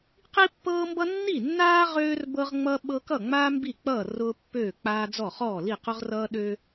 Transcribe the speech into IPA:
q i˥ pː ɤː˥ m b ʌ˥ nː i˥˨ nː aː˥ ʁ øː˥ r b ɤ˥ ʁ ŋ͡m ʌ˥ ɓ ɤ˥ k ʌ˥˨ ŋ͡m aː˥ m b i˥˨ k͡p ʌː˥˨ r ʊː˥ pː øː˥˨ k͡p aː˥ d͡z ɔ˥˨ χ ɔː˥˨ l i˥˨ q ʊ˥ ʁ r ʌː˥ ɗ ø˥

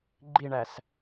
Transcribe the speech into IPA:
ɡ͡ǃ i ɳ æ s

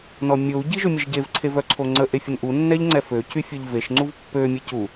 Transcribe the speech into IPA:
n ɔ mʲ o u̯ ɟ i ʒ ø mʲ ə ʒ ɟ e v ǀʰ e v œ ǀʰ o ŋ͡ǀ ə ʔ e fʲ ə n ʔ u nː ɛ ʎ ŋ͡ǀ ɛ f ø c y fʲ œ ʎ v e ʃ ŋ͡ǀ u v pː ø mʲ ɛ c u

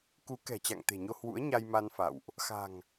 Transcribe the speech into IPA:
k u˨˦ k ɛ̤˨˩ t͡ɕ a̰˧˨ ŋ t̪ e̤˨˩ ɲ o˧ h w ṵ˧˥ ə̯ ɲ a˧ j m a˧ n f a̰˧˨ w ʔ | x a̤˨˩ ŋ

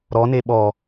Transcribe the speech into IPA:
ɾ ɔ n e ɓ ɔ

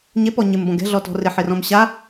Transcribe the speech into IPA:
ɲ e p ɔ ɲ ɪ m b ɔ̃ ɡ ɛ̤ ɮ ɔ t ɔ̤ r ɪ ħ ɪ r ɔ̃ m ɕ a

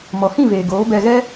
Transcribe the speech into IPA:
m ɔ˨ h ĩ˦˨ v eː˨ ɡ oː˨˦ b ɛ˧ ɣ ɛ˦

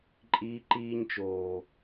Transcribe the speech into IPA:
ǃʼ iː˧ ǃ iː˧ ɲ t͡ʃ oː˨

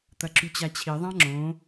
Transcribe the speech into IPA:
t̪ ɐ ǁ ʉ t͡ɕ a t͡ɕʰ i ðˤ ã ŋ͡ǁ õ

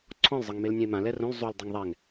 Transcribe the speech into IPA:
ǀʰ ɔ̃ l zˤ ɤ ŋ m e l nʲ ɛ̃ e̯ m ã l ɛ r õ l zˤ u l dˤ e ŋ ðˤ ɛ ŋ

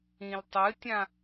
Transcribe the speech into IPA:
ĩ l tˤ ɨ tʲ ã

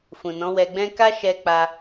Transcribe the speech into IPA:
f ũ˨ n ɔ̃˨˦ w ɛ˧ ɡ͡b ɛ̃˦ k a˦ ʃ ɛ˧ k͡p a˧

